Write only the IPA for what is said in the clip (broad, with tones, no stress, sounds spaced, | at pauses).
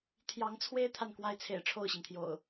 t̪ʰ j ɑ˨˦ ŋ t͡sʰ w e˦ ɪ̯ t̪ʰ a˨ n k w a˦ ɪ̯ t͡sʰ ḛ˨˩ ɪ̯ ʈ͡ʂʰ o˥˨ ʊ̯ ɕ i˩ ŋ t̪ʰ j o̰˨˩ ʊ̯